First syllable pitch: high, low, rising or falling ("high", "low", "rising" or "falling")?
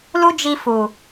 high